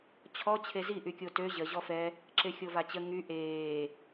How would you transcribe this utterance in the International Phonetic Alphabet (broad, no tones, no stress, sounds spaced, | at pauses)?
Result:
t͡ɕʰ ɔ t͡ɕʰ e z i ʔ y kʲ o t ø ʑ ə ʑ ɔ f ɛ | ǁ e xʲ o v a t͡ɕ ə ŋ y ʔ eː